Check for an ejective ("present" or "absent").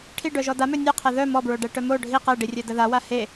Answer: absent